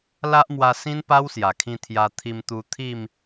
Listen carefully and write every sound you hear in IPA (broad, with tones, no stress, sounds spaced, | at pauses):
l a˦ ʔ m w a˧ s ĩ˦ n p a˦ w s j a˨˩ kʰ ĩ˧ t̪ʰ j a˧ t̪ʰ i˧ m t̪ u˧ t̪ʰ i˥˧ m